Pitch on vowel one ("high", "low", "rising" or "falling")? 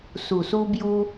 low